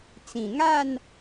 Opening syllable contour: low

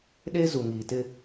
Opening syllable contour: high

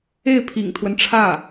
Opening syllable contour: falling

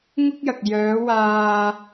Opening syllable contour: high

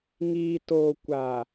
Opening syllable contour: low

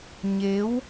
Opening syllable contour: rising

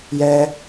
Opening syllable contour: high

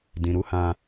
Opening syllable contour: low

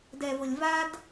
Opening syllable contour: low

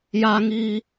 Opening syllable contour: high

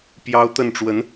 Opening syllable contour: high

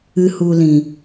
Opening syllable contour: high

